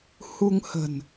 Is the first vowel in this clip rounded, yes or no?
yes